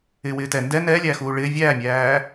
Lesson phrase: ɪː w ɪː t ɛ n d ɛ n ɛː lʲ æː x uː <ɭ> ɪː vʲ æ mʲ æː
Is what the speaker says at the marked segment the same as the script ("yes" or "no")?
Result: yes